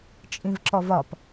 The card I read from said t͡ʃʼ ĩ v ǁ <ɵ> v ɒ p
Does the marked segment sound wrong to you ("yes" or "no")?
yes